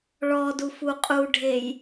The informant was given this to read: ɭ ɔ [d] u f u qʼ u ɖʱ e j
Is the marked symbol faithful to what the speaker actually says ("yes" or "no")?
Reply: yes